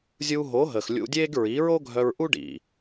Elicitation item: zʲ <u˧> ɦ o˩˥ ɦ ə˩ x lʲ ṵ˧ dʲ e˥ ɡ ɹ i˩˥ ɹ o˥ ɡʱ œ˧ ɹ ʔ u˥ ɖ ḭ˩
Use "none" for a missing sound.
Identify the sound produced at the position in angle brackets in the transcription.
u˧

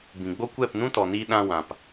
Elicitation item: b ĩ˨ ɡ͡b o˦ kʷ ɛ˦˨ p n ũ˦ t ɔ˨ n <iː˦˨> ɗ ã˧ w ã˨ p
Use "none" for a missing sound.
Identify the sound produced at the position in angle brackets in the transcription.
iː˧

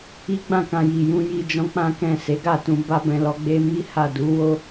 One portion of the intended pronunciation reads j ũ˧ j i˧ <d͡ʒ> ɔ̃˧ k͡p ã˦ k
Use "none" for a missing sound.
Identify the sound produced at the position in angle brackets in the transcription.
d͡ʒ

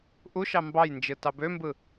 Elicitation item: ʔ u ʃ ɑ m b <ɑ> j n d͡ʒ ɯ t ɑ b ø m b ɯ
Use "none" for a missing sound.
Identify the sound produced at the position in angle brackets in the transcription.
ɑ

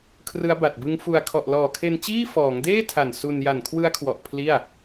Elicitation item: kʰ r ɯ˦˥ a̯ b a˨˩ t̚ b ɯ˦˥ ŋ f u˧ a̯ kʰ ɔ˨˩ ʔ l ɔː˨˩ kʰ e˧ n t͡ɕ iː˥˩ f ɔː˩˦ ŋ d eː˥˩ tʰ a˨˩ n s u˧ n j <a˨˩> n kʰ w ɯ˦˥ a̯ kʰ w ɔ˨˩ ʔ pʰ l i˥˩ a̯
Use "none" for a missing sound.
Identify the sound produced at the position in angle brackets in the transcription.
a˨˩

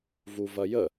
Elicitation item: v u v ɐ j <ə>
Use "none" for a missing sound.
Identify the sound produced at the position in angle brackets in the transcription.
ə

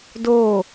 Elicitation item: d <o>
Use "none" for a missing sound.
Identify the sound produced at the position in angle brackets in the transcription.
o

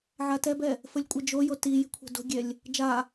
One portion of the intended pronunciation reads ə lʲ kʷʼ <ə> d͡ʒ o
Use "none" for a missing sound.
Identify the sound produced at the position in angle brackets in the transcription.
ɛ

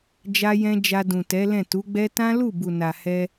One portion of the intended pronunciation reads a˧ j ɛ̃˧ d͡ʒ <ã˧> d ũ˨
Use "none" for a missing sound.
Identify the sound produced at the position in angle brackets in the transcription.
a˧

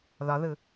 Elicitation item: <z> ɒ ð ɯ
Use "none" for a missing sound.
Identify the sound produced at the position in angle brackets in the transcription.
ð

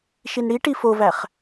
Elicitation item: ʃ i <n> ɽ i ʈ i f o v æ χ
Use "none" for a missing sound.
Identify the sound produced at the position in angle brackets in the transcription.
n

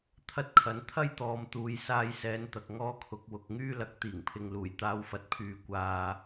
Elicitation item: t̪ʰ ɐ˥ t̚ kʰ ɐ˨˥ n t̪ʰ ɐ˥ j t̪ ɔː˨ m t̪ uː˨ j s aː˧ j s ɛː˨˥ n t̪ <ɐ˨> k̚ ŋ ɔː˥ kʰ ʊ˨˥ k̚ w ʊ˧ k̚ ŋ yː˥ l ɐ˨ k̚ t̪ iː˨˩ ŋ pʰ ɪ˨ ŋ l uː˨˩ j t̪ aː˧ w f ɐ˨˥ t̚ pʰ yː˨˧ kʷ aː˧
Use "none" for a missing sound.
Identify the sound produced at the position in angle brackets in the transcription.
ɐ˨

